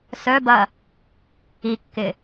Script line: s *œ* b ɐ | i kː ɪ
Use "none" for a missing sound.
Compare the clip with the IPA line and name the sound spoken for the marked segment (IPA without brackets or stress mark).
œ